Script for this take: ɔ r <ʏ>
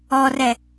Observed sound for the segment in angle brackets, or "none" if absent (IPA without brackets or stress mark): ɛ